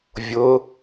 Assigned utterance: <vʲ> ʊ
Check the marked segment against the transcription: correct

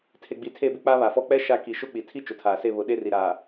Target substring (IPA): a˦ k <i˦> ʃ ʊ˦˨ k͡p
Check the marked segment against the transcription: incorrect: i˨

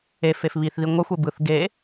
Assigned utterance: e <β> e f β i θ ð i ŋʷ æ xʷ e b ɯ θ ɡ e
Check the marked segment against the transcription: incorrect: f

